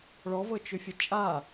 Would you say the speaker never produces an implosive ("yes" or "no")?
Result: yes